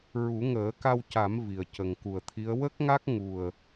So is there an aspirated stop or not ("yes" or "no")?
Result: yes